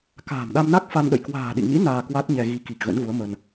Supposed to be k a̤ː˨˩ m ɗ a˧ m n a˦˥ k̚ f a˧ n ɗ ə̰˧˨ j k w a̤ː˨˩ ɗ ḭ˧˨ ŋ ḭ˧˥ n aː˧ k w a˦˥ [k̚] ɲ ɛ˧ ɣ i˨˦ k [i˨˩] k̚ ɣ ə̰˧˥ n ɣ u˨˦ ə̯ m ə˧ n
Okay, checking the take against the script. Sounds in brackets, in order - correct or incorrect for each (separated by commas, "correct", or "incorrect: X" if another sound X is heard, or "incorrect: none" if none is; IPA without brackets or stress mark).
incorrect: t̚, correct